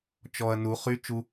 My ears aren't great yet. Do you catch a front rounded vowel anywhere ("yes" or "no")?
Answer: yes